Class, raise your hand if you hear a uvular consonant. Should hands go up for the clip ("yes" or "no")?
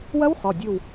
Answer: yes